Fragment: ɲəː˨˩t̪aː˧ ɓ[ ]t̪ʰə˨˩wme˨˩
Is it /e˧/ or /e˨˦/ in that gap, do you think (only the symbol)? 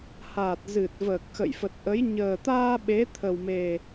e˨˦